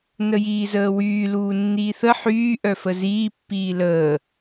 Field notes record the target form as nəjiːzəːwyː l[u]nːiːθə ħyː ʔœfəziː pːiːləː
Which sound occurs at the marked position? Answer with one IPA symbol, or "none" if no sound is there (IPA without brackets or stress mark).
uː